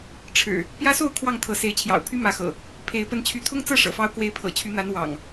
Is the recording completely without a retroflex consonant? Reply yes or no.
no